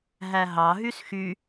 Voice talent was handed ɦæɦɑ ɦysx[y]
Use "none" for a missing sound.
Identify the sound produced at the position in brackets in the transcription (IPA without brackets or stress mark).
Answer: y